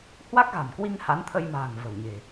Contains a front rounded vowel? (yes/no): no